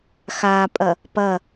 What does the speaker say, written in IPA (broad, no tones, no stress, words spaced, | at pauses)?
xapʼɐ | pɐ